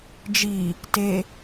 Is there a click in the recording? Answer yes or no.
no